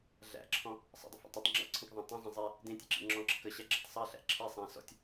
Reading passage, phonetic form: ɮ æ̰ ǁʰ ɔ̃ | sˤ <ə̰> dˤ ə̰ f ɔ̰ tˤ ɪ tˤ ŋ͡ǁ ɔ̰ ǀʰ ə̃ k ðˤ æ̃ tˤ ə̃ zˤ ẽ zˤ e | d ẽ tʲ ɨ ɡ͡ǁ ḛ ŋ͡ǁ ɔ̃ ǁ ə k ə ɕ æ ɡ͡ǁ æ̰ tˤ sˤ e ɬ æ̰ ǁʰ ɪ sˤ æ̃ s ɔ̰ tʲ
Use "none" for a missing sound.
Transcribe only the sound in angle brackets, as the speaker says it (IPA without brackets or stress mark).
ə̰